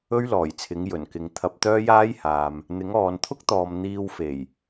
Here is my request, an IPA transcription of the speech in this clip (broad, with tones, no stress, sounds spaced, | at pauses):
ɵ˥ ɥ l ɔː˨˩ j t͡sʰ ɪ˨˧ ŋ j ɵ˨˩ n k ɪ˨ ŋ t̪ʰ ɐ˧ p̚ t̪ œː˥ j aː˥ j h aː˨ m | n̪ ɪ˨˧ ŋ ɔː˨ n t̪ʰ ʊ˥ k̚ t̪ ɔː˨ m n̪ iː˧ w f e˨˩ j